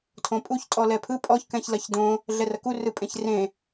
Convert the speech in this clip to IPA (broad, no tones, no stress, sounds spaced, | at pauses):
tʰ õ pʼ u ç tʼ ɔ l ɛ pʰ ɯ pʼ ɔ ç k ɛ̃ ç l ɐ ç d õ | ɮ ɛ r ɐ k u r ɯ pʼ ẽ ç r ẽ